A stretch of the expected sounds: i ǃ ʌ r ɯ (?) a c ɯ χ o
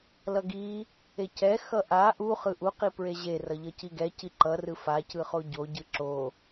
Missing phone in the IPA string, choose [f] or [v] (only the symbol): f